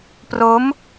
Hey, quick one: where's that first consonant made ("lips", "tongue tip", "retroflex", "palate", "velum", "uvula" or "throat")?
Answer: lips